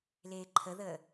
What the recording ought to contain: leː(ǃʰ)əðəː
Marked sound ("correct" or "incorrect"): correct